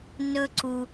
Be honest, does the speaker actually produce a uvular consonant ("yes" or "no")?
no